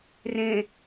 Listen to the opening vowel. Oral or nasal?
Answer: nasal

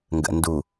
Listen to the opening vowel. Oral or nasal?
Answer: oral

